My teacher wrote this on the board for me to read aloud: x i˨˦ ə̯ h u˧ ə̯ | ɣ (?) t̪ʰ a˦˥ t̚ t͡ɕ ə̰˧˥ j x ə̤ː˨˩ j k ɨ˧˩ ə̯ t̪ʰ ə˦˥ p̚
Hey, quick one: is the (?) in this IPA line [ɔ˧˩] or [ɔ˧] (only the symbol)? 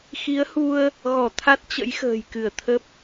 ɔ˧˩